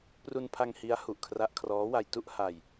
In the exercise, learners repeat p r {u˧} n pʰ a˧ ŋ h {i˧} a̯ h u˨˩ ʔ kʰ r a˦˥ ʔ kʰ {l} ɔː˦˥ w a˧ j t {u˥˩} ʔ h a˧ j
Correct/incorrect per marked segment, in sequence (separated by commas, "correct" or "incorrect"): correct, incorrect, incorrect, correct